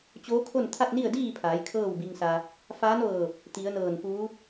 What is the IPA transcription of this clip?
t͡ɕ oː˧˥ kʰ o˥˨ n t̪ʰ a˥˨ t̚ n i˥˨ ə̯ d iː˥˨ pʰ aː˩˧ j kʰ ɤː˥˨ w b i˧ ŋ s a˧ | f aː˧˥ n ʋ ɤː˧˩ p̚ | t̪ i˩˧ ə̯ n ɤː˧˩ n f uː˧˥

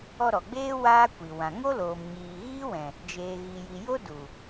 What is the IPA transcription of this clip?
ɔ˧ ɾ ɔ˨ ɡ͡b eː˦ w aː˦ kʷ i˨ w ã˨ ŋ o˦ l oː˨ m ɲ iː˨ ɣ iː˦ w ɛ̃˨ | d͡ʒ eː˨ ɣ i˨ j i˨ j o˦ d u˨

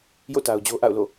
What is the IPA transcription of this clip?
j o̰˦˨ t a˨ ʊ̯ d͡ʑ o˦ ʔ a̰˦˨ ʊ̯ l o̰˦˨

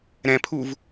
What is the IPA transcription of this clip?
ɾ ɛ̃ pʰ u v

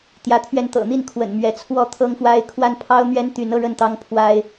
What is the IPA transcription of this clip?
t̪ j ä˨˦ t̪ʰ ɥ ɛ˧ n t̪ ɤ̰˨˩ n̪ i˥˨ n kʰ w ə̰˨˩ n m ɥ ɛ˨˦ t͡sʰ w ɔ˥˨ t̪ʰ ɤ˦ ŋ f w a˦ ɪ̯ kʰ w a˦ n pʰ ɑ˦ ʊ̯ n̪ ɥ ɛ˦ n t̪ y˨˦ n ɤ˦ ɻ ə˥˨ n t̪ ɑ˦ ŋ pʰ w a˦ ɪ̯

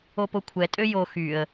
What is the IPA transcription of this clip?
o p o kʷʰ ɛ tʼ ø j o x y ə̯

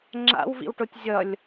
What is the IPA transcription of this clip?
ŋ͡ǁ a̰ w v ḭ w ʈ o tʲ zʲ ʌ lʲ

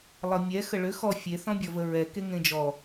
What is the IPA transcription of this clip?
lˠ ʌ mʲ ɛ x ə ɭ ʏ x ɔ fʲ e θ ɔ̃ bʲ ɔ v ə ɹ ɛ k e ŋ ẽ d͡ʒ ɔ

